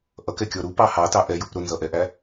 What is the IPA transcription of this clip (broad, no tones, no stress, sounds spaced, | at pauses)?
ʔ ʌ k ɛ kʲ ɔ ɾ u p ɑ h ɑ t ɑ ʔ ɛ j u p ɾ ʊ n z ʌ ʔ ɛ ʔ æ